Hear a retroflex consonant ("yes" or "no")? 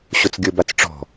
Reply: yes